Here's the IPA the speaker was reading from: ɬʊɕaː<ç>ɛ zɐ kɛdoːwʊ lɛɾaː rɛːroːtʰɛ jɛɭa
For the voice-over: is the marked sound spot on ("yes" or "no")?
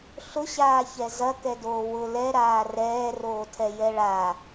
yes